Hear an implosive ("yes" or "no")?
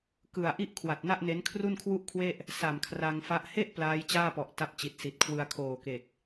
no